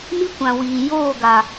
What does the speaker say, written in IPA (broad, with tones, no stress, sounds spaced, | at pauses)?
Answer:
m i˦ kʷ ã˨ w iː˨ j oː˦˨ ɡ a˨